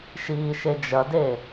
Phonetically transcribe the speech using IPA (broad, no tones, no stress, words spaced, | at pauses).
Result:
ʃiːʃed͡ʒɐde